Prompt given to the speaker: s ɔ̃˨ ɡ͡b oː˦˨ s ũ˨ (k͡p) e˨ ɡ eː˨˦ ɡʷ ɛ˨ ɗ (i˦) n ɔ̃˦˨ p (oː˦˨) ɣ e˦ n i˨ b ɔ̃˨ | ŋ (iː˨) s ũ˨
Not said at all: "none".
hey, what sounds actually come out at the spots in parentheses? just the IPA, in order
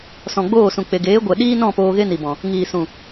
k͡p, iː˦, oː˧, iː˨

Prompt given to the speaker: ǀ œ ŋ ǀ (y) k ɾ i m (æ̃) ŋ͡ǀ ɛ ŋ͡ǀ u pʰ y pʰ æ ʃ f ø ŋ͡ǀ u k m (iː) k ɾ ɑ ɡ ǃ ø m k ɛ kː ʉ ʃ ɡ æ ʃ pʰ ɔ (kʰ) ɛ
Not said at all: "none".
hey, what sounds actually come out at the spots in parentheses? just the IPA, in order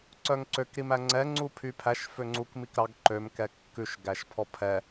ø, æ, i, pʰ

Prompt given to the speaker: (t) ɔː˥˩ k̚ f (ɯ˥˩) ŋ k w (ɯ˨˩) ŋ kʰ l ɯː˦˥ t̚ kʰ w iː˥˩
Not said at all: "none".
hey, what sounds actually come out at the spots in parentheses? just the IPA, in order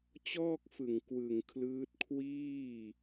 t͡ɕ, ɯ˨˩, ɯ˨˩

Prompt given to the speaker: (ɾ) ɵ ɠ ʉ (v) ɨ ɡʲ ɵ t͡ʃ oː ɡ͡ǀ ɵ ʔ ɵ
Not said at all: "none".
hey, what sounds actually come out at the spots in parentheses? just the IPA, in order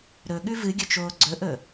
ɾ, v

